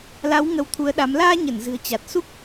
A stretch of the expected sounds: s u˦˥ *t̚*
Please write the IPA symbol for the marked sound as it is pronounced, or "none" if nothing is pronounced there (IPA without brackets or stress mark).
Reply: k̚